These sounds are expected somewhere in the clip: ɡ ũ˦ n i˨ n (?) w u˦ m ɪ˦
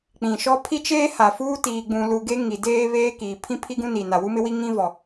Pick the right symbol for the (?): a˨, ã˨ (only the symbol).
a˨